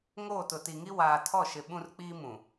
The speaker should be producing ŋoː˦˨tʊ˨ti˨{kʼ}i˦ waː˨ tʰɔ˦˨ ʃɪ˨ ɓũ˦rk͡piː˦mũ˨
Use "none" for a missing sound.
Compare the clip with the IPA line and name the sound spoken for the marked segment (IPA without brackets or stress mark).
ŋ